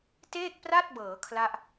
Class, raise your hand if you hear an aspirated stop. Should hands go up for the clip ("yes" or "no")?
yes